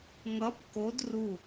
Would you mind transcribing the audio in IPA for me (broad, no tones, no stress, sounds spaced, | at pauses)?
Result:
ŋ ʌ p k o d r u